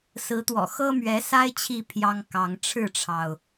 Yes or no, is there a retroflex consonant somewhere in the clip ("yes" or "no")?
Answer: yes